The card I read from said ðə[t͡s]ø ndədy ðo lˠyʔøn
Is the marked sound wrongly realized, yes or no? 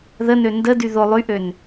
yes